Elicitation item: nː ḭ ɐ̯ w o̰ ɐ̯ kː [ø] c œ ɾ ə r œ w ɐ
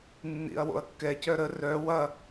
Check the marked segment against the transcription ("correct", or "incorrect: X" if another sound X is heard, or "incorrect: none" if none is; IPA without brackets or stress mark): incorrect: ɛ